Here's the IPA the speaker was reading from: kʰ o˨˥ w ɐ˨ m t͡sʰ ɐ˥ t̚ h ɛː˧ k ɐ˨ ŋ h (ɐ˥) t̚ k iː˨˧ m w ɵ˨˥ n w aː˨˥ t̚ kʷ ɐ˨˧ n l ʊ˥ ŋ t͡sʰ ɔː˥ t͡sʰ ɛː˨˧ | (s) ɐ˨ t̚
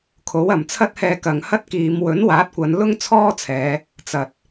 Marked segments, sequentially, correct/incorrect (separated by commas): correct, incorrect